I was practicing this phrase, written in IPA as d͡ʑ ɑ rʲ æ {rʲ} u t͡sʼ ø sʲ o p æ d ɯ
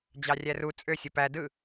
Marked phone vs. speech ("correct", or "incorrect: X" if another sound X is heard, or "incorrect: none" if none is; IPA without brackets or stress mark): incorrect: r